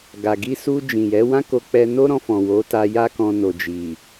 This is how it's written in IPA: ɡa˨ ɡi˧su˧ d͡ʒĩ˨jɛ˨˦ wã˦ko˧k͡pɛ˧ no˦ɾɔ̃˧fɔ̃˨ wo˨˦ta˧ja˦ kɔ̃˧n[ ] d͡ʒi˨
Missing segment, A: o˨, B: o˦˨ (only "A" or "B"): A